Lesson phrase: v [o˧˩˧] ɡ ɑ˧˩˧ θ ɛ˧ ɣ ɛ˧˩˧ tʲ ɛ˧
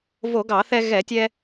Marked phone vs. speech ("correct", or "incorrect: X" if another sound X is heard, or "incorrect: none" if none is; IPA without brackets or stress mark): correct